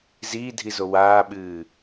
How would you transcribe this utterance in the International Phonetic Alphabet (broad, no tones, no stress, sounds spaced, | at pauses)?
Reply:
z iː dʱ i z o w aː ɓ ɨː